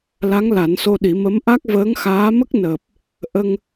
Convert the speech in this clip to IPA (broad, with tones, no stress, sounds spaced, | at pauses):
l a˧˥ ŋ l a˨˩˦ n s o˧ ɗ i˨˩˦ m ə˧˥ m ʔ a˦˥ k̚ v əː˧˥ ŋ x aː˧˥ m ə˦˥ k̚ n əː˨˩ p̚ | ʔ ə˧ ŋ